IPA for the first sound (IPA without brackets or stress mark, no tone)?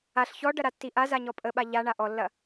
a